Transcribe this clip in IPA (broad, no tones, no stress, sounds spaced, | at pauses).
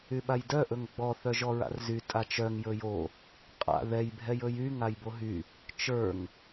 y ɓ a j d œ ʔ ɵ ŋ ɡ͡b ɔ θ œ ʒ ɔ ɹ a̰ r z y tʼ a t͡ʃ œ ŋ j ɵ j o | qʼ a̰ ð ɛ j bʱ ɛ j ɵ j y ŋ a j b o ɦ y | t͡ʃ ə˞ ŋ